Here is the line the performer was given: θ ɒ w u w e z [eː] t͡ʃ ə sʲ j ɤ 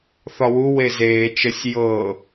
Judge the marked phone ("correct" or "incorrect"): correct